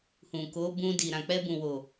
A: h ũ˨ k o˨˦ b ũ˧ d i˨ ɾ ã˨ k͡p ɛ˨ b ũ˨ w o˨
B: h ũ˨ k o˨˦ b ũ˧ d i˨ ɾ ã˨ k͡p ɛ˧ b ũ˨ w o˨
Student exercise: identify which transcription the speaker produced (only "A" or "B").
B